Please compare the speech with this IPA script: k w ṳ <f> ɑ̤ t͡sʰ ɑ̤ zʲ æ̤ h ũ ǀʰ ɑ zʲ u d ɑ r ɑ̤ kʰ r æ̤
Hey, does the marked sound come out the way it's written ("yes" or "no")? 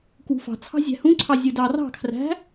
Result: yes